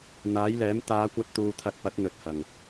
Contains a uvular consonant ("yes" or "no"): no